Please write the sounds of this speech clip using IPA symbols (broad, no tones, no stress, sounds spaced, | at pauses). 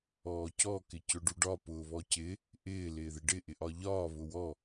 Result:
ɔː c ɔ k ɪ c ʊ ɖ u ɖ ɒ p ʊː β ɔ c ɪ | ʔ ɪː l ɪː ð ɪ ɖ ɪ ʔ ɪ ʔ ɒ ʎ ɒː β ʊ w ɔ